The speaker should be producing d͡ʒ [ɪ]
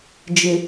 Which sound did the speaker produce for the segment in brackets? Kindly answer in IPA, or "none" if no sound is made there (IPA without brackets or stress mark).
ɪ